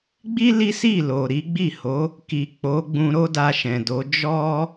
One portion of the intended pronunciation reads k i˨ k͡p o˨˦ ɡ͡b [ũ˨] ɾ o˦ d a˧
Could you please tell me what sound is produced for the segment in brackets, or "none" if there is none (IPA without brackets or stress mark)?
ũ˧